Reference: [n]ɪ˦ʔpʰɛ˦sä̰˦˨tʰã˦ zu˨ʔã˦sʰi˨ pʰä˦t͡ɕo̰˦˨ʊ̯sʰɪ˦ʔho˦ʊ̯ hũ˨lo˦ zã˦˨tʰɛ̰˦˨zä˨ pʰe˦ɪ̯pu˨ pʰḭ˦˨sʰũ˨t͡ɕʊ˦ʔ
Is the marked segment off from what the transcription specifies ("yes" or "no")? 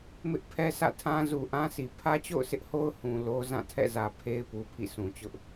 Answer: yes